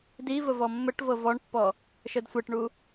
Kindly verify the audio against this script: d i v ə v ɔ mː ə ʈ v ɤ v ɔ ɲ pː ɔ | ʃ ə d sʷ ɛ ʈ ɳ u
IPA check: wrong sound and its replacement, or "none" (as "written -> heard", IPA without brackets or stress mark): ɲ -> ɳ